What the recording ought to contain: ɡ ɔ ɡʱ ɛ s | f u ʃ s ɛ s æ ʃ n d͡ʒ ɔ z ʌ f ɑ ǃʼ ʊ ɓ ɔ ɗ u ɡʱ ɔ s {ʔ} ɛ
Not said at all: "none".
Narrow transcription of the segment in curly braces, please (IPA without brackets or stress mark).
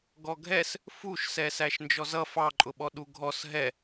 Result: ɦ